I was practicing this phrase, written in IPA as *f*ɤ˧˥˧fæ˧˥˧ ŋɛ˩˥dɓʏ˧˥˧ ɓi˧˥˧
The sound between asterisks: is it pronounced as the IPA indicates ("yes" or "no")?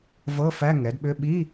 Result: no